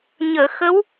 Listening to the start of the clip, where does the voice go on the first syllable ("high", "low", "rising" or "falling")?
low